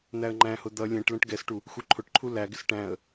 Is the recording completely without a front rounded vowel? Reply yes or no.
yes